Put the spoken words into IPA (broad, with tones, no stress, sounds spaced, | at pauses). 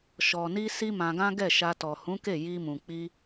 ʃ ɔ˨ n i˧ s i˦ m ã˧ ɡ ã˦ ɡ ɛ˦˨ ʃ a˧ t ɔ˨ h ũ˨˦ k e˦˨ j i˧ m ũ˨ k͡p i˧